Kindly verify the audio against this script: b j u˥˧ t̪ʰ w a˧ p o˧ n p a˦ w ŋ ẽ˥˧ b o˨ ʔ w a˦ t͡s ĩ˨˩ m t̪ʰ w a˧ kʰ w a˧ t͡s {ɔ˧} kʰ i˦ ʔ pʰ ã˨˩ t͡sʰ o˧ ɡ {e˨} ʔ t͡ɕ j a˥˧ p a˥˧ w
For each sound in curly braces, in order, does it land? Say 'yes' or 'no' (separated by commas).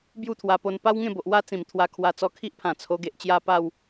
yes, yes